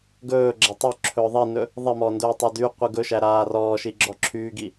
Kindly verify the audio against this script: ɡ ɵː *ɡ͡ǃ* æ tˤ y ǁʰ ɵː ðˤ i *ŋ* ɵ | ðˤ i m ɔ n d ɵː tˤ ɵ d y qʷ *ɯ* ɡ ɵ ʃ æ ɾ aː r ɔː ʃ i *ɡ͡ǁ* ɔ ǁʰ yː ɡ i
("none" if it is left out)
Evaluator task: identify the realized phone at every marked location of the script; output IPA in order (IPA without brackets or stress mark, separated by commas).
ɡ͡ǁ, n, ɯ, ɡ͡ǁ